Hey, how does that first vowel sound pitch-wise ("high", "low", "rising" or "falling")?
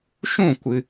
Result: falling